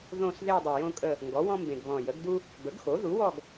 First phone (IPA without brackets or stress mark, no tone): ð